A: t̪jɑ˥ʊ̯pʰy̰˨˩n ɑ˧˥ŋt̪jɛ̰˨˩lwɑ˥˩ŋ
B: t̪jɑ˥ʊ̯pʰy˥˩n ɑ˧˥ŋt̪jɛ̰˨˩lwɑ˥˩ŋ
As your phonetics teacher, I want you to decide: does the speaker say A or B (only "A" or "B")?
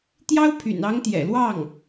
A